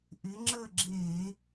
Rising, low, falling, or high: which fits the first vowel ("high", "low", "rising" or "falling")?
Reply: rising